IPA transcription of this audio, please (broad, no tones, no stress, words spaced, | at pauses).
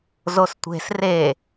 zostʷe̤s re